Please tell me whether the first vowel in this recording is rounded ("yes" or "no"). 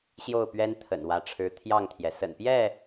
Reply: yes